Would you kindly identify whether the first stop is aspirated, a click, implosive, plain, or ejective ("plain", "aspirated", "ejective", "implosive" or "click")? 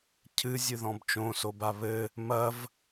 aspirated